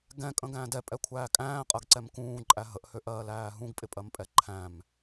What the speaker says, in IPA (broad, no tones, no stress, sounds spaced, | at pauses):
ɡ ɛ̃ kʼ ə̃ ɡ æ̃ː d ɛ pʼ ɛ kʷʰ æː kʼ æ̃ː qʼ ɜ ɡ ǀ ɛ m k ũː ǃʼ æ ɦ ə ʔ h ø ʔ ɜː l æː ɦ ũ ɡ pʼ ɪ pʼ ɜ m pʼ ɛ ǃʰ æ̃ m